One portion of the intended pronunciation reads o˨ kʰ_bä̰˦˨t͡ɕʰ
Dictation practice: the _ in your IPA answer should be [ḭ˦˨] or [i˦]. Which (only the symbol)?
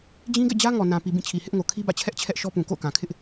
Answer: i˦